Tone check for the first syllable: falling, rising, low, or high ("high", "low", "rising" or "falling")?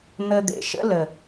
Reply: low